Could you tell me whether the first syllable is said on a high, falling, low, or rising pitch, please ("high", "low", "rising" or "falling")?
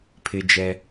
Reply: high